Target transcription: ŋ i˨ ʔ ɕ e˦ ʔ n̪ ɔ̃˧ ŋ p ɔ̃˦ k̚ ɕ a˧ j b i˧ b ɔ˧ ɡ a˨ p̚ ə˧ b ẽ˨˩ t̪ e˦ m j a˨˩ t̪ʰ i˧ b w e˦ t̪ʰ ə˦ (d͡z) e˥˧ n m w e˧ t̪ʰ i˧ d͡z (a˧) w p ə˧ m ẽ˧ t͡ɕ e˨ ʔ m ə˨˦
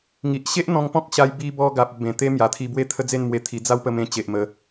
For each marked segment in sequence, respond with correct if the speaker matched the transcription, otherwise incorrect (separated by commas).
correct, incorrect